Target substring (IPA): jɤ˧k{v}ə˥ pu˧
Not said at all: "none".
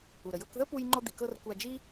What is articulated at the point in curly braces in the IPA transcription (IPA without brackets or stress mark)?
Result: ð